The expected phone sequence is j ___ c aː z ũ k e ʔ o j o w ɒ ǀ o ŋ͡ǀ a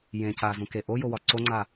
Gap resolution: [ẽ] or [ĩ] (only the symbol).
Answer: ẽ